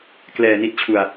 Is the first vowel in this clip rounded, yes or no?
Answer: no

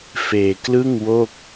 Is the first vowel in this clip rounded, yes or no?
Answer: no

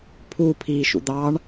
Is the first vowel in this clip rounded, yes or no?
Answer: yes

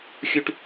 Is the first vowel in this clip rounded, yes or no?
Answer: yes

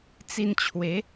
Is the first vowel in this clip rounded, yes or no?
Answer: no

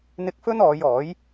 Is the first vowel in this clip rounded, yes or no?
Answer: no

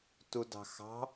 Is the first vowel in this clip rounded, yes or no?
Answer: yes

